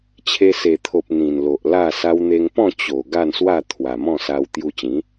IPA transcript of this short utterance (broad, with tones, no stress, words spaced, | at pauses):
t͡ɕʰe˧se˨˩t̪ʰo˨p̚ n̪ĩ˨˩nlo˨ʔ la˥˧ sa˧wn̪e˧ŋpɔ̃˥˧ t͡ɕo˨˩ ɡa˥˧nswa˥˧ t̪ʰwa˨˩mɔ̃˥˧sa˧w t̪ju˧t͡ɕĩ˨˦